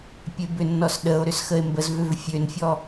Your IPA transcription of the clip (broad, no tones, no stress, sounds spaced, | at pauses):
pʲ e b ʏ nː ɔ s ɗ ə o̯ ɾ ʏ s x ə e̯ m b ə z v ʏ v fʲ ø n fʲ ɔ